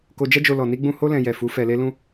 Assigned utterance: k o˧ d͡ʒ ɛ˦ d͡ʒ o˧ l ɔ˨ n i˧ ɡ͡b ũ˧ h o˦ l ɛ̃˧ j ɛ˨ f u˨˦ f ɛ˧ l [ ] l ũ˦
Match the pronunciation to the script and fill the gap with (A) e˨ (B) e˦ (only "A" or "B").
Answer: B